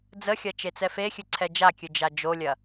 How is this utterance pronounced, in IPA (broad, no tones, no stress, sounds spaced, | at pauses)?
d͡z ə xʲ ɐ t͡ʃ e t͡s ɛ f e xʲ ɨ ǀʰ ɛ d͡ʒ a kʲ ɨ d͡ʒ a d͡ʒ o lʲ ɐ